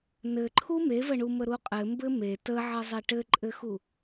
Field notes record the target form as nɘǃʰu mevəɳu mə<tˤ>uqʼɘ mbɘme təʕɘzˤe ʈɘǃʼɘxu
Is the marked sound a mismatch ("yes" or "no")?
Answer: yes